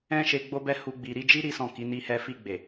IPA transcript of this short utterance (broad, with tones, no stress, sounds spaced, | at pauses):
ɛ̃˦ ʃ e˧ ɡ͡b o˦ b ɛ˦ h u˧ ɡ͡b i˨ ɾ i˧ d͡ʒ i˦ ɾ i˦ s ɔ̃˦˨ k i˨˦ n i˦ h ɛ˦ f i˦˨ ɡ͡b e˨